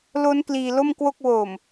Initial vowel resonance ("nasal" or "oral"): oral